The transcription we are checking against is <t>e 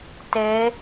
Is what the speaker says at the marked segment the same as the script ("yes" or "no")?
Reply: yes